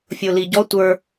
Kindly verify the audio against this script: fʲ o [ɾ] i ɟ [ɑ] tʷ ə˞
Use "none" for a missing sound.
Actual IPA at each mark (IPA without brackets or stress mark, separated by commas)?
l, ɔ